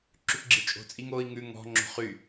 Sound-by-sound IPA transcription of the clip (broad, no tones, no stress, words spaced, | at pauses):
ǁʉpɡ͡ǁit͡ʃʼo̤t͡sʼiŋ oi̯ ŋʉ ŋɔ̤ ŋ͡ǁo̤χy